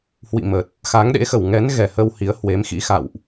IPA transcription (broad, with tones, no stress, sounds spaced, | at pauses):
h w ḭ˧˨ m ə˨˩ t̚ | x a˨˦ ŋ ɗ ḛ˧˥ x ə˧˩ w ŋ ɛ˨˦ n ɣ ɛ˧˩ h ə˧ w h i˨˦ ə̯ h w e˨˦ m x ḭ˧˥ x a̰˧˨ w ʔ